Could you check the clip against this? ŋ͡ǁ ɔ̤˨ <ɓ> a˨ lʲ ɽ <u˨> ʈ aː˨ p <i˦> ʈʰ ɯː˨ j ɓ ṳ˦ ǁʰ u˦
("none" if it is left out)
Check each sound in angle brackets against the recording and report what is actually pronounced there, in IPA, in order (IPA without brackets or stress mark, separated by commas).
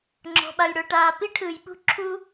ɓ, o˨, i˦